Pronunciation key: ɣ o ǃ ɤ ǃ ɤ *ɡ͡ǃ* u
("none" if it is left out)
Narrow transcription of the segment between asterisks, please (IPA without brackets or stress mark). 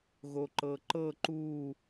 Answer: ǃ